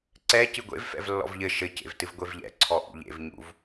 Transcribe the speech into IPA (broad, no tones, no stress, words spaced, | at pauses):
ǀɛ cɨɡʷḛv fɛ̰vlːɔ̰vʎɘ ʃɘ cḛvtɨvɡʷevʎɛ̰ ǀʰɔʔṵʎḛv ɲṵv